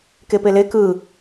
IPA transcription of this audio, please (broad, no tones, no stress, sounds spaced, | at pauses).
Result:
k e p e l e k ɯ